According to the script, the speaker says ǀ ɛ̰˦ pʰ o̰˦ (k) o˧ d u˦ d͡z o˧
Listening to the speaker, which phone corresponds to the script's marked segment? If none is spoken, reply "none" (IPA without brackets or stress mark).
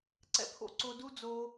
ǀ